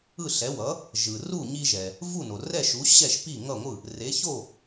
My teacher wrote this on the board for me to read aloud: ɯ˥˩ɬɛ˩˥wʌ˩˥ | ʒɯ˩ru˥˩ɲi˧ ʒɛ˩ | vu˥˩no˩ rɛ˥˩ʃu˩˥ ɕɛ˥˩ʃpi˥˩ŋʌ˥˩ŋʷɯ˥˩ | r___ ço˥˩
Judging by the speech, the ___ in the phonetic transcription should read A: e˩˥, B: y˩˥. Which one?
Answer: A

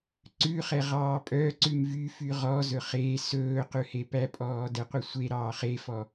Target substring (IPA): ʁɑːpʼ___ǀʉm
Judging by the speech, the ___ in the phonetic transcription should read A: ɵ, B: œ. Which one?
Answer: B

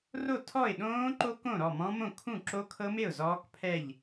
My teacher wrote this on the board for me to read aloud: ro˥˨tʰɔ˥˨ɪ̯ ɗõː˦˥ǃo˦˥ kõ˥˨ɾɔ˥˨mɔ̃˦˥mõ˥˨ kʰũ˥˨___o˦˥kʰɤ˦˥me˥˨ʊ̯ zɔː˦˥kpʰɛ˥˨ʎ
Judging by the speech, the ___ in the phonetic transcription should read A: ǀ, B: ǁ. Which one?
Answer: B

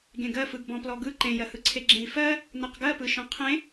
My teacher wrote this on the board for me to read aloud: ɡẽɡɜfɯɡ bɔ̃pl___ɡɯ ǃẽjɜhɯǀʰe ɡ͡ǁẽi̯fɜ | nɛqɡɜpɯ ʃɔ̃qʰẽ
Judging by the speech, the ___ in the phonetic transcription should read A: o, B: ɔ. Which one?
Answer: B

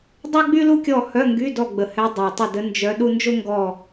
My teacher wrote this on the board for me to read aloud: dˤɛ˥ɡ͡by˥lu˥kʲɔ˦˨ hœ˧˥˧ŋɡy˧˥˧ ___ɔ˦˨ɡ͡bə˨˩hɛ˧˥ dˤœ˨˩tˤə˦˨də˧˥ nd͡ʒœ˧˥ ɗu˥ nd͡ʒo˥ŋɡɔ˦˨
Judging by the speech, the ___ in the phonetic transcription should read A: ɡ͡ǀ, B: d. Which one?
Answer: B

